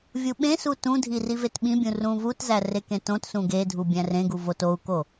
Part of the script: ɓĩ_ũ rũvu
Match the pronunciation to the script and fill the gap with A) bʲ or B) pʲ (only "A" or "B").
A